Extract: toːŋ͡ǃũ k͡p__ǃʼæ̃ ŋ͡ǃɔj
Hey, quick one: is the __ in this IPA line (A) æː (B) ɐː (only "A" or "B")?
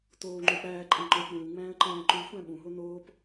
A